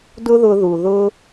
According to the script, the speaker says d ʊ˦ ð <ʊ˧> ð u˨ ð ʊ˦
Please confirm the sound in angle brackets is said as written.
yes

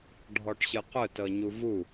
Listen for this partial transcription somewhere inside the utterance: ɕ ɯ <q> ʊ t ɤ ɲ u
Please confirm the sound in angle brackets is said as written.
yes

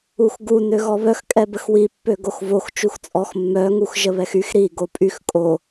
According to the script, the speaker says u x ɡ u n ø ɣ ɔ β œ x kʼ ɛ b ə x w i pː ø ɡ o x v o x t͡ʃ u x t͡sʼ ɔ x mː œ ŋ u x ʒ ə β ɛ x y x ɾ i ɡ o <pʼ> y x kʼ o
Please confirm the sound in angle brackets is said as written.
yes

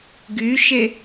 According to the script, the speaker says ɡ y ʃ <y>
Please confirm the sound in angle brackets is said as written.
no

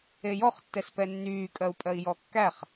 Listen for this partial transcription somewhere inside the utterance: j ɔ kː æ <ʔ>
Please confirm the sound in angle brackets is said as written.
no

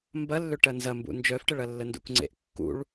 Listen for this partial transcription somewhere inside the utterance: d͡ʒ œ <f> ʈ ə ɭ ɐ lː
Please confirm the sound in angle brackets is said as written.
yes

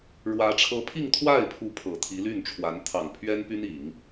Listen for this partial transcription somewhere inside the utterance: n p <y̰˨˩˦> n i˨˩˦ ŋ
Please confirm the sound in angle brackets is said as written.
no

